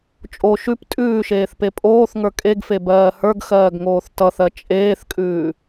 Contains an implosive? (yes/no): no